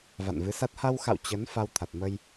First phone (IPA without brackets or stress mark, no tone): v